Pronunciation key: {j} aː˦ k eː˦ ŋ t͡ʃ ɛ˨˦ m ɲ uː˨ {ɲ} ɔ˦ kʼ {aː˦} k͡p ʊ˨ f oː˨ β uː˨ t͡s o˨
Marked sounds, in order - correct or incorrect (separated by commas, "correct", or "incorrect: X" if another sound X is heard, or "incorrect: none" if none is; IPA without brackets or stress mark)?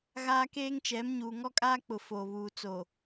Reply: incorrect: ɣ, incorrect: ŋ, correct